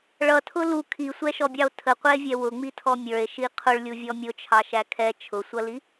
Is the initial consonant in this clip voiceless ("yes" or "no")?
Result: no